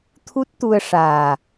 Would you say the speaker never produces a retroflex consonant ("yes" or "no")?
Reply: no